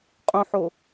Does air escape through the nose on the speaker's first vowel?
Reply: yes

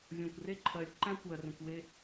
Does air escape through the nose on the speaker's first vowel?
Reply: yes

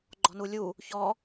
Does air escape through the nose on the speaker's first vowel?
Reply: no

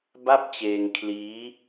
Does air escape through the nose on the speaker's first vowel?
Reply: no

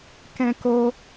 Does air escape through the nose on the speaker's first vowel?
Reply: yes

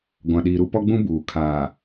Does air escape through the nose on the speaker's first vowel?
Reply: yes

